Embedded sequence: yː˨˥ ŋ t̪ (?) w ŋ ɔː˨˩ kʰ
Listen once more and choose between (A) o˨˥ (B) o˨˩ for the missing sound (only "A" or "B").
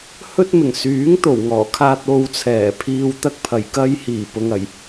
B